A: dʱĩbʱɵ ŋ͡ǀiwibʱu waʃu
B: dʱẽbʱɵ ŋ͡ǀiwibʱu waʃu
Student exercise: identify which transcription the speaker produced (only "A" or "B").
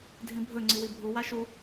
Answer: A